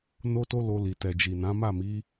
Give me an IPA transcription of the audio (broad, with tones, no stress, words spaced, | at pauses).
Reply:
no˧to˧ lo˧li˨ tɛ˨d͡ʒi˨nã˨˦ ma˦˨mi˨˦